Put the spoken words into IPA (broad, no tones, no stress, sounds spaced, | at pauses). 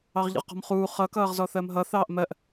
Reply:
ɑ ʁ ʎ ə̰ ʁ q ɔ̤ m χ uː χ ʌ k ʌː ʁ z ɔ θ ɜ m ɦ ʌ θ ɑː ʔ m ɜ ʔ